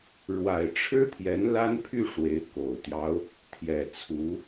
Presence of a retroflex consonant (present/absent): present